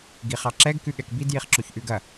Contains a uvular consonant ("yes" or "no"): yes